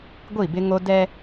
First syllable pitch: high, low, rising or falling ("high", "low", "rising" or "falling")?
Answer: falling